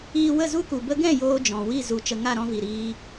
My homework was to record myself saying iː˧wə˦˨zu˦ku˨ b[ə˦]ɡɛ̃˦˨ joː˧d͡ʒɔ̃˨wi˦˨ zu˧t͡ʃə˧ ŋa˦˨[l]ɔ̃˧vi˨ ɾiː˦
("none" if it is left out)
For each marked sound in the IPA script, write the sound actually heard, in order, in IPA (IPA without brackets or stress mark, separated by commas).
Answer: ə˧, ɾ